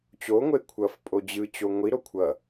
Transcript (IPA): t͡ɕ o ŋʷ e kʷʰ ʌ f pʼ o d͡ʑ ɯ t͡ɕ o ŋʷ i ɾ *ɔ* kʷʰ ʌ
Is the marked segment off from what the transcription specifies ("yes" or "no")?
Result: yes